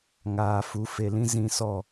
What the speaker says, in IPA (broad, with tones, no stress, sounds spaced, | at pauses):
ŋ aː˨ f u˨˦ f e˨ l ĩ˦ z ĩ˧ s ɔ˦˨